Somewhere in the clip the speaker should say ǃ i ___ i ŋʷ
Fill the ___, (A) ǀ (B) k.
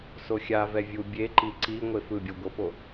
A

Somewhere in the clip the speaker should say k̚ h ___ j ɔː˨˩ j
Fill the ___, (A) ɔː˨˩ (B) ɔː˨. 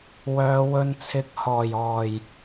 A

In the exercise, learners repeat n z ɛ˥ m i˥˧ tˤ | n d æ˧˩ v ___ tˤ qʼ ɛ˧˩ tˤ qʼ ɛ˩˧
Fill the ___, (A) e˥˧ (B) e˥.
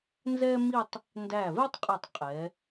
B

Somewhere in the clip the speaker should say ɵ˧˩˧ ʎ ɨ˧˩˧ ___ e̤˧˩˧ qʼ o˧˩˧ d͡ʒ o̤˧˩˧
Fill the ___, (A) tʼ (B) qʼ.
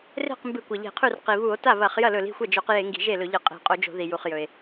B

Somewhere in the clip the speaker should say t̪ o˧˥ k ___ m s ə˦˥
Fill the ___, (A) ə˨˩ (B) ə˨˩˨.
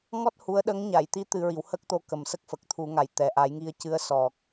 A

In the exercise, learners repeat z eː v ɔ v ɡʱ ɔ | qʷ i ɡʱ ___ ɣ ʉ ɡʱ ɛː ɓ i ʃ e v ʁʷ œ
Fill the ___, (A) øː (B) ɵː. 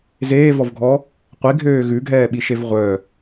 A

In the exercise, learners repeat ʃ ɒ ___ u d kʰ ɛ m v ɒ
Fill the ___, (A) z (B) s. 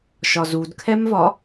A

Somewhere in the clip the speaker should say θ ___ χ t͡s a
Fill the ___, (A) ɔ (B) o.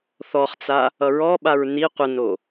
A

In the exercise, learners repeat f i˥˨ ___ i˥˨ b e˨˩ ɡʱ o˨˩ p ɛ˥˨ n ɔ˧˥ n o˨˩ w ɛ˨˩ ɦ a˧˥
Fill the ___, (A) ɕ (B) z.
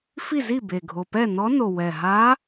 B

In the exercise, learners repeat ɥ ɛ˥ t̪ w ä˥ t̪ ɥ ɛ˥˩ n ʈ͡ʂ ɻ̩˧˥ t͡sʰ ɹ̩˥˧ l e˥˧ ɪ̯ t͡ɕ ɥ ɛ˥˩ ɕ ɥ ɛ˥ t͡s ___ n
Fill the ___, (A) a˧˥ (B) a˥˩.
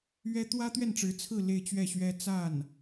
B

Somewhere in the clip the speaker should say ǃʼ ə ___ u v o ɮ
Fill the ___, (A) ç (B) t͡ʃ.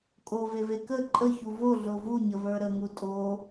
A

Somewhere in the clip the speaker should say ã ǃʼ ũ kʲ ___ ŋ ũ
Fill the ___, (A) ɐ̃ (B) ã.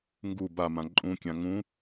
B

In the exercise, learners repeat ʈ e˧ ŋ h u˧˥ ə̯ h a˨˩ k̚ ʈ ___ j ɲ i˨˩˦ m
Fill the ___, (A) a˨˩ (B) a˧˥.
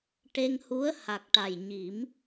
A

